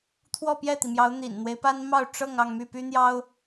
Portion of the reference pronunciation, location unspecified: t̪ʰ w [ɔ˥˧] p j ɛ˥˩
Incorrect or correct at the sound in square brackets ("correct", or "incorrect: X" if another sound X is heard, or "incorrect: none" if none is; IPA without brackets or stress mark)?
correct